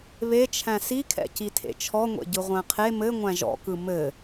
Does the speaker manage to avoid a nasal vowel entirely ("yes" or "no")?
no